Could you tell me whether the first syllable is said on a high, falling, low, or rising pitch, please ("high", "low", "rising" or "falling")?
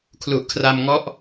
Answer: low